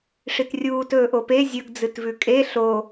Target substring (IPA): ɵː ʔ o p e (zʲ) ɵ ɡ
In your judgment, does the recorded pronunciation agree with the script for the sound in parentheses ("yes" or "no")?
yes